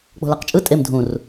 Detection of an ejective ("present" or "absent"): present